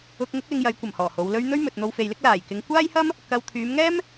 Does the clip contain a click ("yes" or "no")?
no